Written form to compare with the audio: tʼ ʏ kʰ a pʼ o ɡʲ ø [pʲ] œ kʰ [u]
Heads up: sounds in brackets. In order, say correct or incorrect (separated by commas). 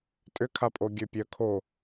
correct, incorrect